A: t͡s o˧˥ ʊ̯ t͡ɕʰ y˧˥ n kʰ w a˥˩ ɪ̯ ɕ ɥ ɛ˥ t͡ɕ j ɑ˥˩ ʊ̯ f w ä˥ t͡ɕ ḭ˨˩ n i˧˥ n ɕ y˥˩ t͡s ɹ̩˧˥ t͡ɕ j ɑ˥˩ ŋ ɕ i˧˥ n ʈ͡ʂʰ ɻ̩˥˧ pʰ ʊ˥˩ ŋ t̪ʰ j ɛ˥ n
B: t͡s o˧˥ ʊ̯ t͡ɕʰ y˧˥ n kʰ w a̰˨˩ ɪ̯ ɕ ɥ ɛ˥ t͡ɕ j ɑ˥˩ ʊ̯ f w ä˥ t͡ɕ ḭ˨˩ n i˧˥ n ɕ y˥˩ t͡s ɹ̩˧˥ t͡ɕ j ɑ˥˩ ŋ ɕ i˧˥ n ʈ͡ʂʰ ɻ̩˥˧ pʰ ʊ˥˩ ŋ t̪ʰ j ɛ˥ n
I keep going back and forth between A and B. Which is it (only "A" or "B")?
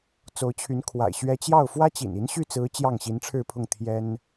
B